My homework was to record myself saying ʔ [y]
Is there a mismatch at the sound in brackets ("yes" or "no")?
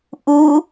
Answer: yes